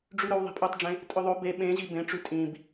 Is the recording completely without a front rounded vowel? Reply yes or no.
no